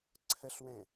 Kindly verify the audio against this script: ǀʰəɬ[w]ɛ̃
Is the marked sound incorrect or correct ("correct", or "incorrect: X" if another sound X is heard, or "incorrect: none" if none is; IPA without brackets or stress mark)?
correct